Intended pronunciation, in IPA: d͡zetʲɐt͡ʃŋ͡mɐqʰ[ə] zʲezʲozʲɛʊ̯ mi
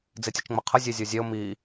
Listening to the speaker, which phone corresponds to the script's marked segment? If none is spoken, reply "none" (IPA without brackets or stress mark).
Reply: ə